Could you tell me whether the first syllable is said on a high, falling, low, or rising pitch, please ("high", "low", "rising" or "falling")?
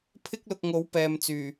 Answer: high